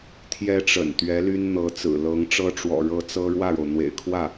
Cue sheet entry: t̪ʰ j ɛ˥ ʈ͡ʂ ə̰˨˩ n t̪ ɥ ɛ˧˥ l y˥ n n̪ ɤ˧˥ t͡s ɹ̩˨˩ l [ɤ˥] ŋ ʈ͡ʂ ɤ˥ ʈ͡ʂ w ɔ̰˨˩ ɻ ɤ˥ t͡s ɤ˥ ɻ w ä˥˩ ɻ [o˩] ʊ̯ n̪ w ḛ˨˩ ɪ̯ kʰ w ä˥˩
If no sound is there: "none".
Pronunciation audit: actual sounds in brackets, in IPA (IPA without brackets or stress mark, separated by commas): ɤ˧˥, o˩